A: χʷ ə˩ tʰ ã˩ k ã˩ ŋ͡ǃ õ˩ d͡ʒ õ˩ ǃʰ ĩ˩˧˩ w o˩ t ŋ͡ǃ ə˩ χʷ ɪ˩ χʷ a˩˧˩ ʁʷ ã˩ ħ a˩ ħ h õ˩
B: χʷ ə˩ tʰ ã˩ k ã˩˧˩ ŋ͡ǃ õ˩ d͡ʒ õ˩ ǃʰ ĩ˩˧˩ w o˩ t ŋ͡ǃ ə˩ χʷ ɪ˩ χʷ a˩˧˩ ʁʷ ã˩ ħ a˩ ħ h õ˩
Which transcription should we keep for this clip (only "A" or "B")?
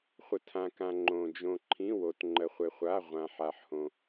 A